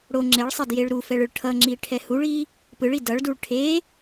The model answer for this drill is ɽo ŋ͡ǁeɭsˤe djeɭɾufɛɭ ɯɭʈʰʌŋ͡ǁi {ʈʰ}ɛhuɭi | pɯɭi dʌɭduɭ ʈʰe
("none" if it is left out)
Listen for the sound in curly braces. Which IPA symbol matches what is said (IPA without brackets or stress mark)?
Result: ʈʰ